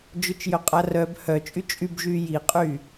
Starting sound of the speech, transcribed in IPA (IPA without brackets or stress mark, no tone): d͡ʒ